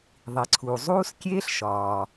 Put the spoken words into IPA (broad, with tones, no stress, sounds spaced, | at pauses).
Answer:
ðˤ i˩ ǀʰ uː˩ zˤ uː˥ s kʲ eː˥ ɬ ʃ ɒː˩